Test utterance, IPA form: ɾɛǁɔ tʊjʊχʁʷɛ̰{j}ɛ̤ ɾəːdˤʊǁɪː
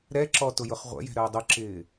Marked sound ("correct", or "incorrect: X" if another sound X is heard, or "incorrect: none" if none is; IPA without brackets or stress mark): correct